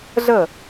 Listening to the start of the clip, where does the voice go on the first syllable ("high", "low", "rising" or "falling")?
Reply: falling